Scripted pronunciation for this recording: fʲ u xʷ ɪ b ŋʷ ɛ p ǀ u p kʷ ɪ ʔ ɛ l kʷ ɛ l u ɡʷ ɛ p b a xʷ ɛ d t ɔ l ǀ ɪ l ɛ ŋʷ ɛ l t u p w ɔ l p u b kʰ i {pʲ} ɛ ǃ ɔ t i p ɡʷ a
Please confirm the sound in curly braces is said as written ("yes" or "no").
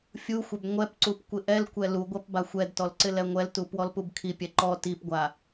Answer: yes